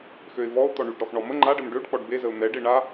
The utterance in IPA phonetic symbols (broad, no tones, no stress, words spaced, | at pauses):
xøɪ̯vɔʊ̯ t̪ɔɳyɖ ɾɔxɳɔmə ŋ͡ǃaɖəm ɖøɖ k͡pɔɖbezəʊ̯ n̪ɛɖe ɳa